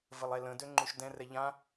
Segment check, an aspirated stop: absent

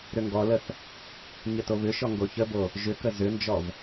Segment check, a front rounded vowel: present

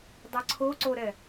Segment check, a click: present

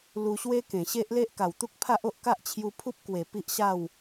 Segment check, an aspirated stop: present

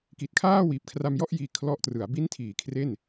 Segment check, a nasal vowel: absent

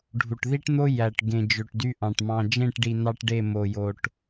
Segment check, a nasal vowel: present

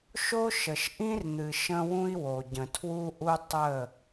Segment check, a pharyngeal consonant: absent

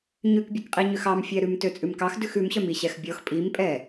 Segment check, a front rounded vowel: present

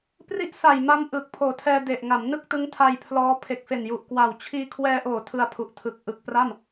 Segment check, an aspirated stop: present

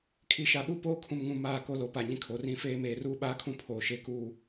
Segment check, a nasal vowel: present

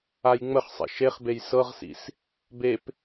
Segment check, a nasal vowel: absent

